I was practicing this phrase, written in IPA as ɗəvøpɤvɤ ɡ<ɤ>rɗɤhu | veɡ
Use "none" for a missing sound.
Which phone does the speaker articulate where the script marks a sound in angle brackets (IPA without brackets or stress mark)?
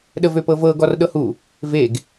ɔ